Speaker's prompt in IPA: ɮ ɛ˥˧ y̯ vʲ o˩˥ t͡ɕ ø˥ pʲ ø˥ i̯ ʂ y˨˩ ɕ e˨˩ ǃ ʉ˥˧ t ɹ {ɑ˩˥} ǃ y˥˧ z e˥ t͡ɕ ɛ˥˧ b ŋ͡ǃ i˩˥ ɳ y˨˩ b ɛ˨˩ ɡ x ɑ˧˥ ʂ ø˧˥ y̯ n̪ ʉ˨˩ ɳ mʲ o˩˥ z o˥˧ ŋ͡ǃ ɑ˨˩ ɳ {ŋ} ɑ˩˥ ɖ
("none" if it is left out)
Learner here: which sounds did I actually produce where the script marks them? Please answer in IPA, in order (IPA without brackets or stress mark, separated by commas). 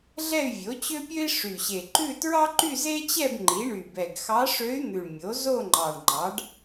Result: ɑ˥, ŋ͡ǃ